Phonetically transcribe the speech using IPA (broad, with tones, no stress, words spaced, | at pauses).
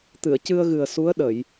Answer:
t̪ɨ˨˩˨ə̯cɨ˧ə̯ɣɨ˨˩ə̯ su˧˥ə̯ɗə˨˩˨j